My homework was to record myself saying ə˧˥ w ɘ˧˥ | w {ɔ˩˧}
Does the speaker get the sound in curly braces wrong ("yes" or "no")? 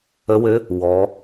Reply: no